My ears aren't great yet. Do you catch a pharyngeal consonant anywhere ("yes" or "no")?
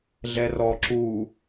no